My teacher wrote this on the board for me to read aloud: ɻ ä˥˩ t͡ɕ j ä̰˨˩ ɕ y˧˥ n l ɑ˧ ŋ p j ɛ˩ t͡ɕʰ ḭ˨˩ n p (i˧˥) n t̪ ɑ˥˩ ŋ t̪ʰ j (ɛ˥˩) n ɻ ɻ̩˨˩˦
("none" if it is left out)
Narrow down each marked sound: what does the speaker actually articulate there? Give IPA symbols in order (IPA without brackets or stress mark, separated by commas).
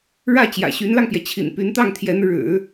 y˧˥, ɛ˧˥